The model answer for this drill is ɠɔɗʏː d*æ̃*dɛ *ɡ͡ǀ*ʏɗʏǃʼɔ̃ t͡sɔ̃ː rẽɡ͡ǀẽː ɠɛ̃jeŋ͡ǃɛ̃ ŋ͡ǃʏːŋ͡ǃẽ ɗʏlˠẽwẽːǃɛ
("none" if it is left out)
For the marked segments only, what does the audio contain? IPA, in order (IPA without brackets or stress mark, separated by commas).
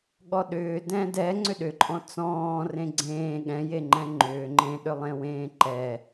ɛ̃, ŋ͡ǀ